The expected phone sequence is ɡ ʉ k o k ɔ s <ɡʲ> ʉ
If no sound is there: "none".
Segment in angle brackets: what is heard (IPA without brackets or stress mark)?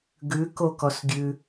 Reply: ɡʲ